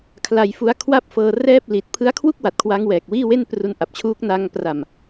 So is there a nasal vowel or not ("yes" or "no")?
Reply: no